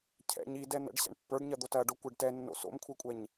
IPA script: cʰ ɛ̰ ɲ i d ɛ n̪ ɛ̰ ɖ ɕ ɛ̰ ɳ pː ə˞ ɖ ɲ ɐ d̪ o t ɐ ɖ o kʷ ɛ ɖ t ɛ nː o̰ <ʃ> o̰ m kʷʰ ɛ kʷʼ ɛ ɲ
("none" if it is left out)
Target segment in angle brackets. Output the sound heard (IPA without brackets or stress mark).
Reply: s